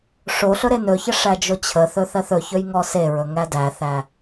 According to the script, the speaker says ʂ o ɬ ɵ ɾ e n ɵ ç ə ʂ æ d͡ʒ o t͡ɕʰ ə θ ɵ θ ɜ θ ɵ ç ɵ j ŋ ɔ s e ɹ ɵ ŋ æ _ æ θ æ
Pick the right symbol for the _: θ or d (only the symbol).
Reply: d